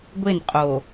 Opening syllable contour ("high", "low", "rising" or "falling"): falling